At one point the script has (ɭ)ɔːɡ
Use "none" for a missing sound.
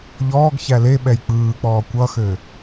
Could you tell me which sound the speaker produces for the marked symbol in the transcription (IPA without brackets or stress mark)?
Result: ʎ